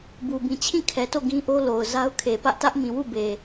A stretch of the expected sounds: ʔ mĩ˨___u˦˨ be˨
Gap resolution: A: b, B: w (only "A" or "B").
B